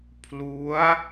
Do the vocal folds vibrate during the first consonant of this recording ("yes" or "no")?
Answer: no